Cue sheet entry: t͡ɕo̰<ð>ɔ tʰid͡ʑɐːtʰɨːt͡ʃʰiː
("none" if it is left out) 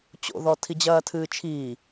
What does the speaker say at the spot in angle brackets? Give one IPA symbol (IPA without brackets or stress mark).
ð